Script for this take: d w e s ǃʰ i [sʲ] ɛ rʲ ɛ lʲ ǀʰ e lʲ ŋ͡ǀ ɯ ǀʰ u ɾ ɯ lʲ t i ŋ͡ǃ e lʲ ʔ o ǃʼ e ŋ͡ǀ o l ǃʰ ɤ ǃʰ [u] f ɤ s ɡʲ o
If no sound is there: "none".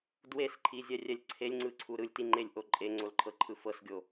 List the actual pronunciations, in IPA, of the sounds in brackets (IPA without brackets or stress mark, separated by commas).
zʲ, ɯ